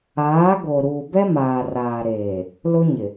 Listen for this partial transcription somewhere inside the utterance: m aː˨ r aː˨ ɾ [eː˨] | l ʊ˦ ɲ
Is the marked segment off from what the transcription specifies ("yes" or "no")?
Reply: no